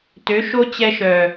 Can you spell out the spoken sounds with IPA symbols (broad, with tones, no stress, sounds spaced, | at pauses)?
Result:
t ø˨˦ ʃ o˦ t͡ɕ ɛ˦ ʃ œ˨